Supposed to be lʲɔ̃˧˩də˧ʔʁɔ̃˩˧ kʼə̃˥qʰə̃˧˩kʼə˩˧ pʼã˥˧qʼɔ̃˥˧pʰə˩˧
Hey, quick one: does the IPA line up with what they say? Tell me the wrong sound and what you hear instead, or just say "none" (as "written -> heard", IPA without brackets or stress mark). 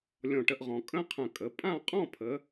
d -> ʈ